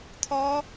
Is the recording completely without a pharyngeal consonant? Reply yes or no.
yes